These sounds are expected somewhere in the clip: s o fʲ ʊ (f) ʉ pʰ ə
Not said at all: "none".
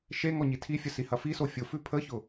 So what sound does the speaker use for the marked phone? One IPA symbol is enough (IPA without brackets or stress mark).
f